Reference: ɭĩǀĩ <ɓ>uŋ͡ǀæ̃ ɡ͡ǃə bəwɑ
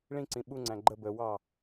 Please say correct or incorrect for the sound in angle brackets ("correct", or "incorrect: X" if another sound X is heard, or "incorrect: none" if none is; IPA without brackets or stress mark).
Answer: correct